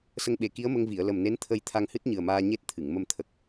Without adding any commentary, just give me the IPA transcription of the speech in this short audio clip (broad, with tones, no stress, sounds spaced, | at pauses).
s ə˧ ŋ ɓ e˨˩ k i˧˥ ə̯ m ə˧ ŋ v i˨˩˨ ə̯ l ə˨˩ m n e˧˥ n t̪ʰ ə˧ j t̪ʰ a˧ ŋ h ɨ˦˥ t̚ ɲ ɨ˨˩ ə̯ m aː˧ ɲ e˦˥ t̚ t̪ʰ ɨ˨˩˨ ŋ m ə˧ m t̪ʰ ə˨˩ k̚